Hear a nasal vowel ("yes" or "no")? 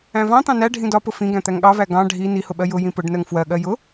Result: yes